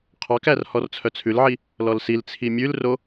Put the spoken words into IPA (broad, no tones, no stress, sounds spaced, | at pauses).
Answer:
qʰ ɑ k æ r h ɔ r t͡sʰ œ t͡sʰ ʉ l ʕ i | l ɔ l s i l t͡sʰ i mʲ ʉ l r o